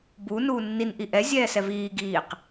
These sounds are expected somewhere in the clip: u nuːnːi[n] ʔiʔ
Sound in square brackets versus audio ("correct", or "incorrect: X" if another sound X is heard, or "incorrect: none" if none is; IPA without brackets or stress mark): correct